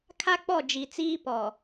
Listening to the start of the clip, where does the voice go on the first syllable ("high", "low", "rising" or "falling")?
high